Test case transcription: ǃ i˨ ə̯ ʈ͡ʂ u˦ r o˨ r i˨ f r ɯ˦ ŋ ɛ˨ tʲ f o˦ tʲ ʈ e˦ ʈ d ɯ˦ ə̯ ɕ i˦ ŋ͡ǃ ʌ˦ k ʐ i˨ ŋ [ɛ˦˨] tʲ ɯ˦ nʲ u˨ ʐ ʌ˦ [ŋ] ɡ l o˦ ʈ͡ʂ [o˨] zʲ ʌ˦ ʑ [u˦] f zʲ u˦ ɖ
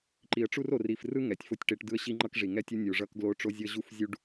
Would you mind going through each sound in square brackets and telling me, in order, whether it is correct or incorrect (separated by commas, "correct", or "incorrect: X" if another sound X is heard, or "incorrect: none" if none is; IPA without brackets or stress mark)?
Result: incorrect: ɛ˦, incorrect: k, incorrect: o˦, correct